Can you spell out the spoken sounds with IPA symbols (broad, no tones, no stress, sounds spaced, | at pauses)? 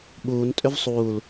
ɓ uː n tʼ ʏ v sˤ uː l